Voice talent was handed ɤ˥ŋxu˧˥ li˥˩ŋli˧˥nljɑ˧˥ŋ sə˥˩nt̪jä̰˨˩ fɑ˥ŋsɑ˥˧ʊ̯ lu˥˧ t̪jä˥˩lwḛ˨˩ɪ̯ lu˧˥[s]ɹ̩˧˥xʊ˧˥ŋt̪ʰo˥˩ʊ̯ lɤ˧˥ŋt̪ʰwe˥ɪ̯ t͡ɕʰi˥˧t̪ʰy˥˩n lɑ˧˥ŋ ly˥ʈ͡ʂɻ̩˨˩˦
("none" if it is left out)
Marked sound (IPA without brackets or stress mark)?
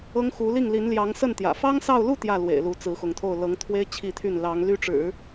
t͡s